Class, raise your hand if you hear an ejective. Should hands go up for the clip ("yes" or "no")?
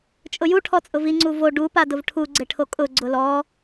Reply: yes